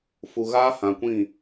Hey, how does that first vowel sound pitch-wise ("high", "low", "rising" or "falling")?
low